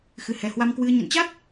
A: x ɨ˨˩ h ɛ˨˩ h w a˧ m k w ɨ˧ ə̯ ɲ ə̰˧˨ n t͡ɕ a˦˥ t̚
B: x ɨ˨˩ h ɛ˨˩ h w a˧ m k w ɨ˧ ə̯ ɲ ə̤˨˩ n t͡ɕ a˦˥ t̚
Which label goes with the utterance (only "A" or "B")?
A